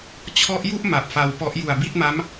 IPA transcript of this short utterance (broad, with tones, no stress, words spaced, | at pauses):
t͡ɕʰɔ˦˥ʔju˥˩ʔ ma˨˩p̚fa˧wpɔ˦˥ʔ ju˨˩a̯bi˥˩t̚ma˦˥m